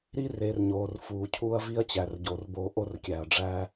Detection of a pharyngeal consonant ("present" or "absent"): absent